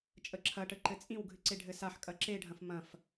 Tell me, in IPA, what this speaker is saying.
t͡ʃʼ ə ǁʰ ɐ ʈ ə ǃ ɘ t͡sʼ ĩ w ɡʱ ɨ ǀ e ɖʱ ɘ s a ħ kʼ ɐ ǁ e ɖʱ ɐ̃ f m ɐ̃ f

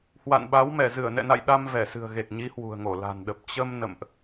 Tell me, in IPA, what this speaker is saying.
h w a̰˧˨ n ɓ a˨˦ w m ɛ˧˩ z ɨ˧˩ ə̯ n ɛ̰˧˨ n a̰˧˨ j ɗ a˧ m v ɛ˧˩ s ɨ̤˨˩ ə̯ ɣ e˨˩ k̚ ɲ i˨˦ h w ṳ˨˩ ə̯ ŋ o˧˩ l a̤˨˩ n ɗ ə˨˩ p̚ t͡ɕ ə˧ m n ə̰˧˨ m ʔ

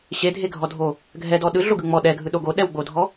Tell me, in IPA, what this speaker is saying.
ɕ e dʱ e ɡʱ ɔ dʱ o | ɡʱ ɛ d ɔ ɗ ɯ ɮ o ɡ ɯ ŋ͡m ɔ ɗ ɛ ɡʱ ɯ ɗ o ɡ o ɗ ɛ w ɡ͡b o dʱ ɔ

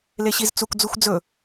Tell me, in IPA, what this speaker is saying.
l e ɕ i z t͡s u k d͡z u xʷ d͡z ɵ

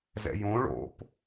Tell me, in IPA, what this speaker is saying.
z ɛ̰ j õ ɭ o̰ p

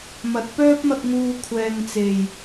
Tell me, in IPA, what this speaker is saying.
m ɐ˨˥ t̚ p œː˥ p̚ m ɐ˧ k̚ ŋ uː˧ kʷʰ ɛː˨ ŋ t͡s e˨˩ j

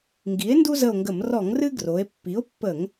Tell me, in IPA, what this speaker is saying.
ŋ ɡ i˩˥ e̯ n d u˦ z ə˦˨ o̯ ŋ ɡ ə˧˩˧ m r ɔ˧˩˧ ŋ r ɨ˦ ɡ r o˩˧ e̯ pː i˩˥ o̯ pː ə˧˩˧ ŋ

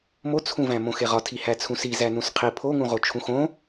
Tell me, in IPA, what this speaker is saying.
m o t͡sʰ ũ v æ̃ m õ x e ʁ ɒ tʰ i h æ t͡sʰ ũ s i z æ n ũ s qʰ i pʰ o ŋ ũ ʁ o t͡ʃʰ ũ x õ

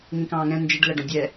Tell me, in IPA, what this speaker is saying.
ŋ ĩ k ɑ̃ː ŋ ɛ̃ n d͡ʒ ɪ ɖ l æ ɖ ɔ̃ dʲ ɛ

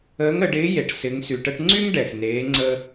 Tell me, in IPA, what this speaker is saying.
əː˧˥ ŋ ə˩˧ ɖ ɪː˧˥ j e˩˧ ʈ s ɪ˩˧ ŋ s y˩ ʈ ə˧ ʈ ŋ͡ǀ y˥ ŋ ɖ ɛ˩ x n eː˩˧ ŋ͡ǀ ə˧

